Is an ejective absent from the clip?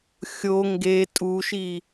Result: no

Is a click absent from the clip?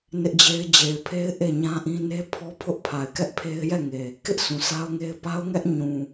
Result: yes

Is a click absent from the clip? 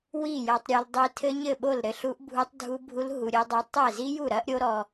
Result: yes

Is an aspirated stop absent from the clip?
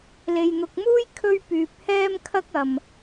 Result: no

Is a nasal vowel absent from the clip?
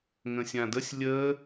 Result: no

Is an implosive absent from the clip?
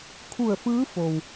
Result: yes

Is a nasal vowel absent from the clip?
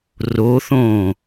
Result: no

